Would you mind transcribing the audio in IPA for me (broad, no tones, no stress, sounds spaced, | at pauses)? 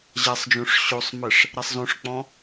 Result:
ʑ ɛ sˤ d͡ʒ õ ʂ ɕ o sˤ m ɘ ʂ | ɾ ɛ sˤ z õ ʂ k͡p ɔ̃